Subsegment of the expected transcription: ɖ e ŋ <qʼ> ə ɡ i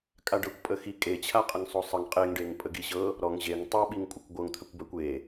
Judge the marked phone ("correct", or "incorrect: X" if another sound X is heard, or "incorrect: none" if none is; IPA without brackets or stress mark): incorrect: pʼ